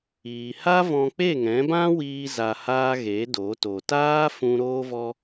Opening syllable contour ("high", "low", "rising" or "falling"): low